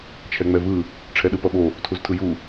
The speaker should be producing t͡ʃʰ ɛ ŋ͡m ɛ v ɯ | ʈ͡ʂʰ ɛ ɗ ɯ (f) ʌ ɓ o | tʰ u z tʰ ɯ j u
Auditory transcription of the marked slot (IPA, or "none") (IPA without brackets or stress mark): p